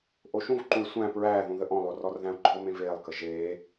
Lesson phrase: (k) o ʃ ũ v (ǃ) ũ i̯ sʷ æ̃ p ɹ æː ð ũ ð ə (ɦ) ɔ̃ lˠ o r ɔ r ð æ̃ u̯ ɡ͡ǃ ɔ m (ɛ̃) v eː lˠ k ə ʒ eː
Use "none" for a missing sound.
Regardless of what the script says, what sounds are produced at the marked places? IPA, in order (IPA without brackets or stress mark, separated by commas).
ʔ, ǃ, ʔ, ẽ